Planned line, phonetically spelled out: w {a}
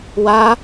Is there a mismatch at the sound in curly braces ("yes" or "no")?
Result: no